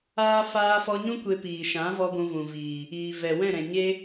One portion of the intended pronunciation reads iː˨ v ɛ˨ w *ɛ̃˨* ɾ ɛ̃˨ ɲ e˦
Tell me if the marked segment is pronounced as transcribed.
no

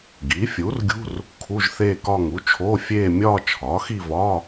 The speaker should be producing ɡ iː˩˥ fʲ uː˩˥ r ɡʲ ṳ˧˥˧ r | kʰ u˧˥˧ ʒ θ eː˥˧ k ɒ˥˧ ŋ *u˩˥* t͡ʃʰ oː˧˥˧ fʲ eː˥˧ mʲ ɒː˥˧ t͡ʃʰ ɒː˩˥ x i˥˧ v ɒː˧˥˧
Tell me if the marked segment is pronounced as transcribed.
yes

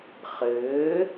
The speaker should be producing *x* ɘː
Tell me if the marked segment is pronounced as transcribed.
no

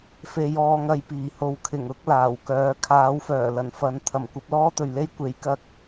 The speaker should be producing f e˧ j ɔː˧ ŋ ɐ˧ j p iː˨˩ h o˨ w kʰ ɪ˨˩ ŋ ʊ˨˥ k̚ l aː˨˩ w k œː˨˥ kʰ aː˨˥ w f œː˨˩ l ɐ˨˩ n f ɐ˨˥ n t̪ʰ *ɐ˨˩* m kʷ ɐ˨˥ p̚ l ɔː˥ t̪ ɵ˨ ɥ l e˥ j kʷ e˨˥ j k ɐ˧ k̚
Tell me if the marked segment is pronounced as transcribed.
yes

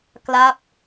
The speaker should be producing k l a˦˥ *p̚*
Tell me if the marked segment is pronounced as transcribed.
yes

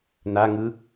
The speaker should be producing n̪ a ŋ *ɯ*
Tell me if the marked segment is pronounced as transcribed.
yes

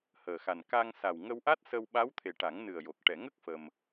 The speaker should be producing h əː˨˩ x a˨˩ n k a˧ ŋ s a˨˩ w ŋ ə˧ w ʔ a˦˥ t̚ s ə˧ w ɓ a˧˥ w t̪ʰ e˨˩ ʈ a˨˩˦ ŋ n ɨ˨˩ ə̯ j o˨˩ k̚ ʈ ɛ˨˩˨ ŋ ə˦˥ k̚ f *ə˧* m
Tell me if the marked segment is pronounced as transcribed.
yes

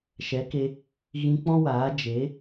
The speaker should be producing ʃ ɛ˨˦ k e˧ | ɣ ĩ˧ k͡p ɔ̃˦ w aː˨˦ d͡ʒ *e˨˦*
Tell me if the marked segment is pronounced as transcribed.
yes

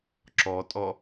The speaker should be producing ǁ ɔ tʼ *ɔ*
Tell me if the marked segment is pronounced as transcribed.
yes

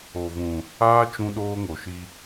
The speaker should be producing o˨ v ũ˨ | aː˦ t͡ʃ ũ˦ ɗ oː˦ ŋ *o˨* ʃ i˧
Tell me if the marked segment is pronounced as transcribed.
yes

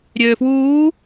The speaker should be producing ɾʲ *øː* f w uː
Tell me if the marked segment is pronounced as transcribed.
yes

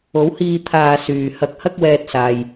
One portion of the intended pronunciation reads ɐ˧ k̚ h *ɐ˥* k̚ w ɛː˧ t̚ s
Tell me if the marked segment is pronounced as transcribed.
yes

